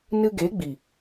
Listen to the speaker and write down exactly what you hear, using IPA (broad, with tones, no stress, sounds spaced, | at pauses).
n ɨ˧ ɡ e˨˦ ɡ͡b i˨